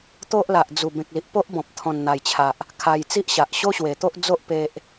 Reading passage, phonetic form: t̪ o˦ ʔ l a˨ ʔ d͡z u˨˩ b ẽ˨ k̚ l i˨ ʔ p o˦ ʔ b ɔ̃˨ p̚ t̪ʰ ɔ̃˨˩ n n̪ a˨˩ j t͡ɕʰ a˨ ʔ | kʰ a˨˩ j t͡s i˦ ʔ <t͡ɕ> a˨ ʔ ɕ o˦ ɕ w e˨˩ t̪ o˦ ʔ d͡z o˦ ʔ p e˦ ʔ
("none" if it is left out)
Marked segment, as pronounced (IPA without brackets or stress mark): ɕ